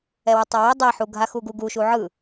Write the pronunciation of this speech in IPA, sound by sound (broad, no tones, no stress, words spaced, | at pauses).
ɛwɯtˤawo dˤɛħu ɡʱaxuɡu ɡuʃu ʕɯ